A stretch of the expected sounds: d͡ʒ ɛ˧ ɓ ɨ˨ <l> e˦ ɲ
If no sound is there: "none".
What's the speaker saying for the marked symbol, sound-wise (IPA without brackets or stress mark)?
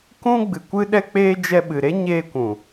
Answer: ɾ